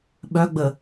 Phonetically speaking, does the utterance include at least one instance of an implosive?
yes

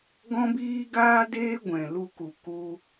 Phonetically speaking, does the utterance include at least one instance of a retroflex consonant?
no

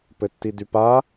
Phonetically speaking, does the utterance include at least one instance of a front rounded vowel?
yes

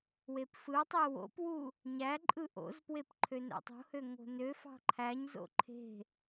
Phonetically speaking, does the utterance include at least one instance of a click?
yes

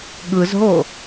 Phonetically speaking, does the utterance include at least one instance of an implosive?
yes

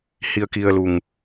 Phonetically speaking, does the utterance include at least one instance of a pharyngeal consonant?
no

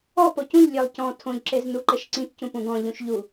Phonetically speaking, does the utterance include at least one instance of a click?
yes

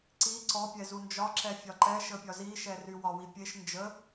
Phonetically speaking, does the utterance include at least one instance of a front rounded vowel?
yes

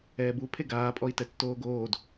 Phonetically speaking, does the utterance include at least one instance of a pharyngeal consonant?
no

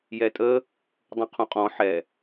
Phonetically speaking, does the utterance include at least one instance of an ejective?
yes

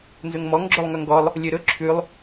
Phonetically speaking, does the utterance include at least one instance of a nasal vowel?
no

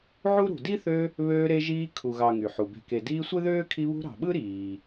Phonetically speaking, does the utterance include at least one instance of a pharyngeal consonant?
yes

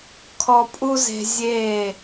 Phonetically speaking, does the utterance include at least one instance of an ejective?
yes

